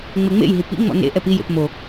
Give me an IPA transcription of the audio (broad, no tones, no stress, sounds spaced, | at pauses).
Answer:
ŋ͡m e ŋ͡m ḛ j ɦ i p ḭ ŋ͡m ɔ̰ n ḛ ʔ ɛ p i j ḛ p m o